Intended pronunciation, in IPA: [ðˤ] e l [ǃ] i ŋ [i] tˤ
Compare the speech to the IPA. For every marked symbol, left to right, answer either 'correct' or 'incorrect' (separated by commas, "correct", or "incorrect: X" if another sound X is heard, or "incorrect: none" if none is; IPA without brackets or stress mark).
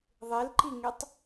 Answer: correct, correct, incorrect: e